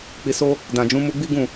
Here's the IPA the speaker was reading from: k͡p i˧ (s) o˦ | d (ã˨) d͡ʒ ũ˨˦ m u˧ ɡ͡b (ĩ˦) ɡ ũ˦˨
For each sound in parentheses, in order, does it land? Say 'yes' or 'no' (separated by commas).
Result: yes, yes, no